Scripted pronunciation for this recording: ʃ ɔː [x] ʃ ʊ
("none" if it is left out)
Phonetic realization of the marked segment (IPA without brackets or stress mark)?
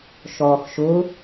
x